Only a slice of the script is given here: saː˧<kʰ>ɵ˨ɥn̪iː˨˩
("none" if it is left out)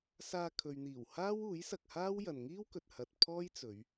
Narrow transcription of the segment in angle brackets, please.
kʰ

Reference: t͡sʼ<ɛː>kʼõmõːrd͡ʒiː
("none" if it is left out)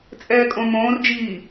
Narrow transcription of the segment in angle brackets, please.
ɛː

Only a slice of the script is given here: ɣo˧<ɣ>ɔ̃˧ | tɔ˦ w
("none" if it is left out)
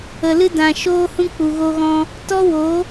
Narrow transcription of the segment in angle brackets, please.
ɣ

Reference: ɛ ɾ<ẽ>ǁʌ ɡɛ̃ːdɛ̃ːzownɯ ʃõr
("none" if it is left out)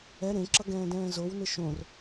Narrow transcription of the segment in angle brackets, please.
ẽ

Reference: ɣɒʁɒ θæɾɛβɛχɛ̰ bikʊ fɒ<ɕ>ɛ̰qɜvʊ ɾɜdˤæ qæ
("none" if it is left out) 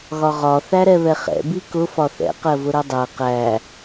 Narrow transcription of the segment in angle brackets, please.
θ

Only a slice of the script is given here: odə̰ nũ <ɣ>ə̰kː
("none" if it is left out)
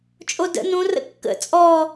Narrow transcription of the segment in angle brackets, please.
r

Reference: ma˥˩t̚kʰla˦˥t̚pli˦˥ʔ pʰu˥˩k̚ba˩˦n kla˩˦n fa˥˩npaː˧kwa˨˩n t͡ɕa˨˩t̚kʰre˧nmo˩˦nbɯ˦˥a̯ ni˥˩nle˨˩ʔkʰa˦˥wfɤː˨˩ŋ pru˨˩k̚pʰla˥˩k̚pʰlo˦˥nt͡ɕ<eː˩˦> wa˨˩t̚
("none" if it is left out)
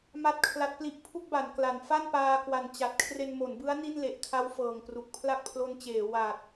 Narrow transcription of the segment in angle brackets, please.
eː˩˦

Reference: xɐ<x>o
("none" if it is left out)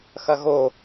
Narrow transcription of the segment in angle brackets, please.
ɣ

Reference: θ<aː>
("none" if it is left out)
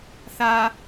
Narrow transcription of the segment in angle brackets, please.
aː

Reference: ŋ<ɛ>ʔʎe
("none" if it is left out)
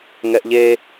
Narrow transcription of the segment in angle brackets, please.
ɛ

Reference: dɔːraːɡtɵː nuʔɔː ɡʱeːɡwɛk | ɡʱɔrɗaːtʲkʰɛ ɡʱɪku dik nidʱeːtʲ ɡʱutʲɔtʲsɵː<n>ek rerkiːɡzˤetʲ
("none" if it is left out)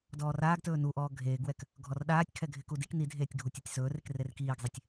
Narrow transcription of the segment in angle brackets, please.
r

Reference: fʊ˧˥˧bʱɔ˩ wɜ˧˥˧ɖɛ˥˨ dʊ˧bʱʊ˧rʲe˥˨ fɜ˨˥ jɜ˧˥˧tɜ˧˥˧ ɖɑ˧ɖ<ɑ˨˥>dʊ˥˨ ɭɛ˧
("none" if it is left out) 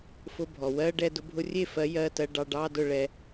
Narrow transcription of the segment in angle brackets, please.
ɑ˧˥˧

